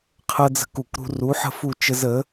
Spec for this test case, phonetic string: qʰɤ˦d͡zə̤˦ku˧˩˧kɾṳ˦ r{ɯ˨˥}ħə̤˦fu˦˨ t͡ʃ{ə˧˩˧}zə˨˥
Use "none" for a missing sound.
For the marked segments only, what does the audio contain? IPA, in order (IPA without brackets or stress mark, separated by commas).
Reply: u˨˥, ə˦